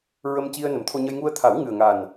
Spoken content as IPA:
ɹ ə˧ m c i˧ ə̯ n ə˨˩ m t̪ʰ o˧ ɲ ə˧ j ŋ u˧ ə̯ t̪ʰ a˨˩˦ w ŋ ɨ˨˩ ə̯ ŋ a˨˩ n

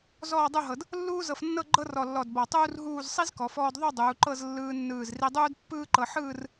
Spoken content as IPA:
z ɔː˥˧ dˤ u˥˧ ɦ ɤ˧ d | lː uː˥ z ɤ˧ f nː ɤ˥˧ ɡ͡ǃ ɤ˥ r ɔ˧˩ lː ɔ˧˩ d b ɔ˧˩ tˤ uː˥ r ɦ uː˥˧ z sˤ i˥ z k ɔ˩˧ f ɔː˧ d ðˤ u˥˧ dˤ uː˩˧ ǃ ɤ˥˧ z lː ɯː˧ nː ɯː˧˩ z r i˧ dˤ uː˥ d pː ɯː˥ ǃ ɤ˧ ħ ɯː˥˧ r

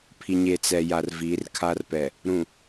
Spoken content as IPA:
pʰ i˨ ɲ e˨ t͡s ɛ˨ j a˨ r v i˨˦ r kʰ a˦ r p ɛ˨ | ɾ ũ˨

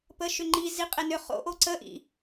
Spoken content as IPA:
p əː ʃ ʏ ŋ͡ǃ i z i qʼ e n ʏ χ o̰ ʔ o ǀ ə ʔ ḭ

